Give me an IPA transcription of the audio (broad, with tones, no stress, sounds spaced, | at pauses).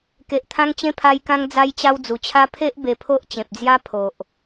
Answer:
k e˨ ʔ t̪ʰ ã˧ ŋ t͡ɕ ẽ˧ pʰ a˧ j k ã˧ ŋ d͡z a˧ j t͡ɕ a˧ w d͡z u˨˩ t͡ɕʰ a˦ pʰ e˦ ʔ b e˧ pʰ o˦ ʔ t͡ɕ ẽ˨ p̚ d͡z j a˦ pʰ o˨ ʔ